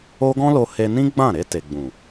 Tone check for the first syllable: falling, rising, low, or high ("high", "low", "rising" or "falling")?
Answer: high